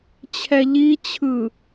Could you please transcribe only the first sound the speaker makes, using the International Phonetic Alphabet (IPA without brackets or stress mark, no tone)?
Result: t͡ɕʰ